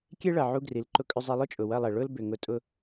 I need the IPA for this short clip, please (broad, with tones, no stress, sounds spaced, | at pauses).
kʲ e˦ ɭ ɐ˨ ʕ u˧ ɡ r i˨ l ǃ ʊ˧ kʼ ʏ˧ zˤ e˧ lˠ ʊ˦ t͡ʃʼ ʊ˨ w ɐ˦˨ lˠ ɛ˨ ɭ ʊ˦ l b ʏ˨ ŋ ʊ˧ tʼ ʊ˦